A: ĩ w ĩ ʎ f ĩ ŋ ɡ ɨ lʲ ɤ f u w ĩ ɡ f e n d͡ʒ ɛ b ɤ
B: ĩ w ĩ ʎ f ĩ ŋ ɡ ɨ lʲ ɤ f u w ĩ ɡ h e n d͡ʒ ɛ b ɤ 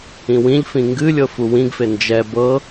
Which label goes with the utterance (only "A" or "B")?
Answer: A